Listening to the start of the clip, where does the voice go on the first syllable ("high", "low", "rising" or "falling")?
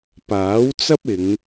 rising